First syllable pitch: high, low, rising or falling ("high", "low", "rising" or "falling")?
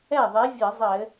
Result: falling